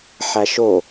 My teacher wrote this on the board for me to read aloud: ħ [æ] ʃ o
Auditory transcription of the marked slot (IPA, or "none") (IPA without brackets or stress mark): æ